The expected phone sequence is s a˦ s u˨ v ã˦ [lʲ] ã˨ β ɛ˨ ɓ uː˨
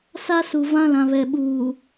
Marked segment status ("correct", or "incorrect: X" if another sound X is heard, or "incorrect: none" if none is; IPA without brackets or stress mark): incorrect: l